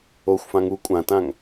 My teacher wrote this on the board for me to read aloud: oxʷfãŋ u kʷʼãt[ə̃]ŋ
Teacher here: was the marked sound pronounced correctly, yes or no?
no